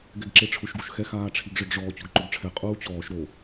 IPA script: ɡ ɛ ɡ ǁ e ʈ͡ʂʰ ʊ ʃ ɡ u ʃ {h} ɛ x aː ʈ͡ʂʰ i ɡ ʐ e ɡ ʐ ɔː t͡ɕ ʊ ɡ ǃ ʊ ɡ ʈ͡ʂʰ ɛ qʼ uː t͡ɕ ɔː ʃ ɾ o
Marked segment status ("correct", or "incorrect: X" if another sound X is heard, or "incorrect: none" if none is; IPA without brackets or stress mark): incorrect: x